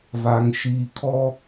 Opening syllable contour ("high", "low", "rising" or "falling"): low